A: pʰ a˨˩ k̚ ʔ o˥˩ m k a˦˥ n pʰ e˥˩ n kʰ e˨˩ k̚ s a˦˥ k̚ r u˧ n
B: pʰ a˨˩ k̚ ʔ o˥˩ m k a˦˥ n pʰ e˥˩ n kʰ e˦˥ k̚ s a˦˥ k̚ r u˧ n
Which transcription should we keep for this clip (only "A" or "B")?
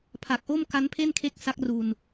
B